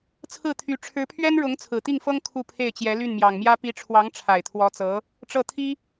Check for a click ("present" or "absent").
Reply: absent